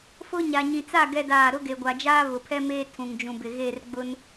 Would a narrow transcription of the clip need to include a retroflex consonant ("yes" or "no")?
no